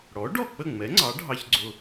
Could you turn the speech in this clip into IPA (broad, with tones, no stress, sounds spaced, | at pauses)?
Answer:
ɽ ɔ˩˥ ɖ ɔ˥˩ k͡p ə˥˩ ŋ͡m ɛ˩˥ ŋ͡ǀ ɑ˩˥ ɖʱ ɑ˧ ç ɡ͡ǀ ʊ˧